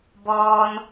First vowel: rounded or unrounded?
rounded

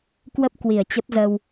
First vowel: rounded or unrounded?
unrounded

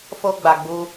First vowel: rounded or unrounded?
rounded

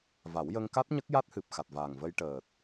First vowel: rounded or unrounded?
unrounded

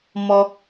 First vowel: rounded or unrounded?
rounded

